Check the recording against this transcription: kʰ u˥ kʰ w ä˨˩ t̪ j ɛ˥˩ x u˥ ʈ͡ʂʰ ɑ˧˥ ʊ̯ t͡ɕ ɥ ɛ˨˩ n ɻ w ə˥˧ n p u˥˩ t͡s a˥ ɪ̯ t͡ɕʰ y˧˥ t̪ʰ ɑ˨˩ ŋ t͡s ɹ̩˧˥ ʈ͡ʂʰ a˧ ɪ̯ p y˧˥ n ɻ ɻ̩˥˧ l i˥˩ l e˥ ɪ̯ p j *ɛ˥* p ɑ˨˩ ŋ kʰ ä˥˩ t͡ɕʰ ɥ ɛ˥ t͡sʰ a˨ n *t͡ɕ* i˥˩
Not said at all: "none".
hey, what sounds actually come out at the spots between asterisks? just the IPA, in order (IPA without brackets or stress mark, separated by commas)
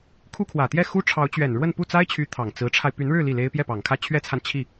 ɛ˥˩, t͡ɕʰ